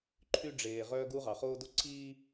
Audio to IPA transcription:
ǃʰ y˦ ɖ͡ʐ eː˨ ʁ œː˦ ɡ u˦ ʁ ɑ˨ χ oː˦ d o˦ ǀʰ iː˦

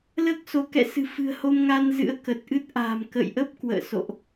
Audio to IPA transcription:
l əː˦˥ k̚ s o˨˦ k ɛ̰˧˨ s ɨ̤˨˩ f ɨ̤˨˩ ə̯ h o˧ m ŋ a˧ n z ɨ̰˧˥ ə̯ k ə˨˩ t̚ ʔ ɨ˦˥ t̚ ʔ a̤ː˨˩ m k ə̰ː˧˨ j ʔ ə˦˥ p̚ k w ə̰ː˧˨ s o̰˧˨ ʔ

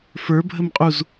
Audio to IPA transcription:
f ə˞ bʱ ə m qʼ u z

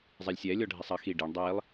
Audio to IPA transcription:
zˤ ɛ lʲ sʲ ɛ lʲ ɔ ɖʱ i sˤ ɐ x i ɖ i ɳ dˤ i lˠ

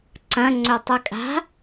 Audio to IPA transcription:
ǀ ɐ̃ ŋ͡ǀ ɵ tˤ ʉ kʼ a̤

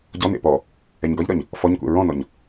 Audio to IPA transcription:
ɟ ɔ n ḛ p ɔ | ɛ ɲ ɡ ɒ ʎ ɾ ɒ ɲ | f ɔ ɲ kʷ ɛ̰ ɹ ɔ̃ n ɔ ɲ

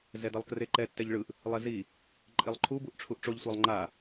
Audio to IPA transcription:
z ɛ d ʌ lˠ k r e ǃ ɛ tː ɛ ʎ ɭ ɯ ʔ | lˠ ɛ z i | ǃʼ i lˠ ǃʰ u b u ʔ ʈ͡ʂʰ u ʔ ʈ͡ʂ o ʎ sʷ ɛ lˠ ŋ͡ǃ a

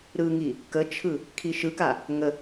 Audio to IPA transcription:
ɾ ɯ ŋ i | k ə t͡ʃʰ ɯ | kʰ i ʃ ɯ k a | ŋ ə

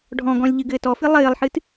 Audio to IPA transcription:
ɖʱ ɔ̃ ɡ ɔ̃ lʲ ʎ ɨ ɡ ɘː t ɔ f ɨ lˠ ɘː lˠ ħ ɨ t

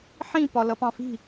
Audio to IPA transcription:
ħ ĩ p ɒ l ʌ p ɑ̃ f i̤

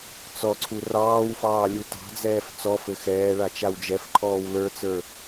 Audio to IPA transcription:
t͡s ɔ ǀʰ u r ɑː w f ɑː lʲ u t ɑ̤ d͡z ɛː f t͡s ɔ f ɘ x ɛː ɭ a t͡ʃ a w d͡ʒ ɛ f ǃʰ ɔː w l ə˞ t͡s ə˞

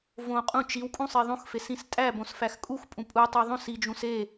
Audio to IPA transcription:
v õ qʼ ũ t͡ʃ i w kʼ ũ sˤ e ðˤ õ x f e s ĩ s tʼ æ b õ s f æ x kʼ u x pʼ ũ pʼ u tˤ u ðˤ õ s i d͡ʒ ũ s e

